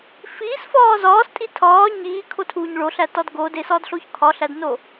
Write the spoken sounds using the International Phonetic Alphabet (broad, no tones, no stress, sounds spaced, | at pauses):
f iː s f ɒː z ɒː s tʼ i tʰ ɒː ɲ iː kʰ o tʰ uː ɲ ɭ o ɬ æ t ɒ d ɡ o d e s ɒ d ɬ o ç kʰ ɒ ɬ æ d n o